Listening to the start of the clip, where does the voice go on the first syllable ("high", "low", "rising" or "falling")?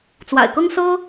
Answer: low